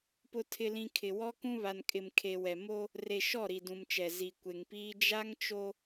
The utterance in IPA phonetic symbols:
p ʊ˨ tʰ ɪ˨ l ĩ˨ kʰ ɪ˨ w ɔ˦ k ũ˦ β a˨ n kʼ ɪ˨ m kʰ e˨ w ɛ˨ m o˦ | r e˨ ʃ ɔ˦˨ ɾ i˨ d ũ˨ m t͡ʃ ɛ˨ z i˨ kʷ e˨ ŋ p iː˦ d͡ʒ a˦ ŋ t͡ʃ o˦

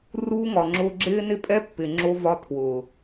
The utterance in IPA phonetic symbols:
r uː˧ ŋ ɒ˨ ŋ͡ǁ ʊː˧ ɡ͡ǁ ɪː˦ n ɪ˦ pʼ ɛ˦ pː ɪ˨ ŋ͡ǁ o˧ v ɒ˧ tʰ w ʊː˨

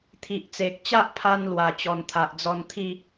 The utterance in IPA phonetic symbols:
t̪ʰ i˨ ʔ t͡s e˨ k̚ t͡ɕ a˦ ʔ pʰ a˧ n l w a˨˩ t͡ɕ ɔ˨˩ n t̪ʰ a˨ ʔ d͡z ɔ˧ n t̪ʰ i˥˧

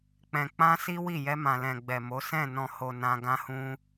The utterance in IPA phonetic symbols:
k͡p ɛ̃˧ k͡p ã˦ s i˦ w i˦˨ j ɛ˧ m ã˨ l ɛ̃˨ ɡ͡b ɛ˨ m o˨˦ s ɛ̃˦˨ n ɔ̃˨ h o˨ n ã˧ ɡ ã˦ h ũ˦

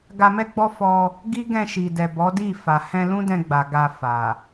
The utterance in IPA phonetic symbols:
ɡ a˧ m ɛ˦ ɡ͡b ɔ˦ f ɔ˧ | ɡ i˦ ɡ ɛ̃˧ ʃ i˨ d ɛ˨ b ɔ˨˦ d i˦˨ f a˨ h ɛ̃˧ l ũ˦ d ɛ̃˧ ɡ͡b a˨ ɡ a˧ f a˨

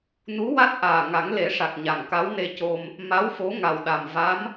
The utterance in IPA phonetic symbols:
n u˧˥ w a˦˥ t̚ ʔ aː˨˩ ŋ a˨˩˦ ŋ l e˨˩˦ ʂ a˨˩ k̚ ɲ a˨˩ ŋ k a˧˥ w n e˧ c o˧ m | m a˧˥ w f o˧˥ ŋ a˨˩ w ɗ a˨˩ m v a˧˥ m

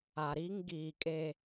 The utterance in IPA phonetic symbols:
a˨ ɾ i˦ ŋ ɡ iː˨ kʼ e˨

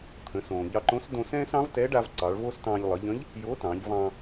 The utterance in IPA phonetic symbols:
t̪ʰ ə̃˩˧ s õː˩ ʎ ɑ˧ ǃ õ˧˥ s d õ˧ s ɛ̃ː˥ s ɑ̃˧˥ v t ɛ˧˥ ɖ a˧ v ǀ ɑ˩˧ ɭ v o˥ s t ɑ̃ː˧ ʎ lˠ ə˩˧ ʎ ə̃˧˥ ʎ | j o˧˥ t ɑ̃˩˧ ʎ v ɑ̃˧

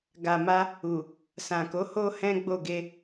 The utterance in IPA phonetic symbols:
ɡ a˨ m a˧ | u˨ | s ã˨ k o˨˦ h o˦ h ɛ̃˦ ɡ͡b o˦˨ ɡ e˧

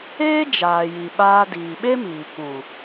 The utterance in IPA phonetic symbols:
eː˦ d͡ʒ aː˨ j i˨ ɓ aː˧ d iː˨ ɓ e˦ m iː˨ k ũ˨

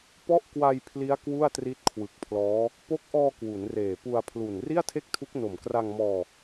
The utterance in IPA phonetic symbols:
p ɔ˥˩ ʔ k w a˧ j pʰ l i˦˥ a̯ k w u˥˩ a̯ t r i˦˥ t̚ kʰ w ɯ˨˩ k̚ pʰ l ɔː˦˥ | p o˦˥ k̚ ʔ ɔː˧ k w u˩˦ n r eː˨˩ p u˧ a̯ pʰ l u˨˩ n r i˥˩ a̯ tʰ e˥˩ k̚ tʰ u˦˥ k̚ n o˨˩ m k r a˧ ŋ m ɔː˧

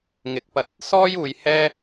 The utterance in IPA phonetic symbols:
ŋ ɪ˨˥ k̚ p ɐ˧ t̚ | s ɔː˥ j uː˨˧ j h ɛː˥

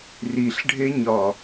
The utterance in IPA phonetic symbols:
r i ɬ ɖʱ e ɲ ɒ

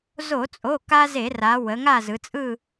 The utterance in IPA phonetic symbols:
z o˧˩˧ t͡sʼ o˩˧˩ k a˦ z e˧˩˧ r a˩˧ w ə˩˧ ŋ a˦˨ z ɯ˩˧ t͡sʼ ɯ˦˨

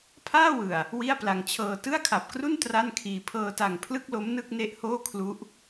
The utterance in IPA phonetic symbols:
pʰ aː˥˩ w ɯ˨˩ a̯ | w i˥˩ a̯ p l a˧ ŋ t͡ɕʰ ɤː˧ t ɯ˥˩ a̯ kʰ a˨˩ p̚ k r u˥˩ n t r a˥˩ n kʰ iː˧ pʰ ɤː˧ t a˨˩ ŋ pʰ l ɯ˥˩ k̚ l o˦˥ m n ɯ˥˩ k̚ n e˦˥ ʔ h oː˥˩ kʰ l u˦˥ ʔ

